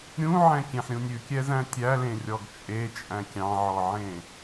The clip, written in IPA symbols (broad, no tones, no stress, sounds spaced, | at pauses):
ɾʲ ũ ʕ ɛ̃ kʲ ẽ ħ ɾʲ ũ nʲ ʉ kʲ ɛ z æ̃ tʲ æ l ẽ rʲ ɔ ɡ t͡ʃʼ e t͡ʃʼ æ̃ kʲ ɑ̃ ʕ ɔ ʕ ẽ